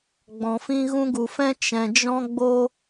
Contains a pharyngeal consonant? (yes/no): no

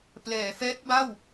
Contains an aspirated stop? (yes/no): no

